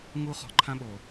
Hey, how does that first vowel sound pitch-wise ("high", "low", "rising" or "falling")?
high